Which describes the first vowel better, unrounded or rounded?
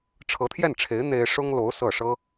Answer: unrounded